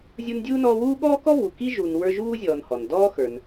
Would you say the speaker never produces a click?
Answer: yes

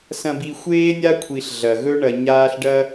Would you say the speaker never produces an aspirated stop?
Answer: no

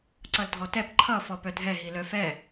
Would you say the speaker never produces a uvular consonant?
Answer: yes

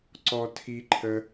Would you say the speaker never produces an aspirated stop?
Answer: no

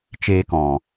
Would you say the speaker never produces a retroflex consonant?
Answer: yes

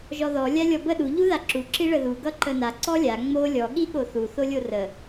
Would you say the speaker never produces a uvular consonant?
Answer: yes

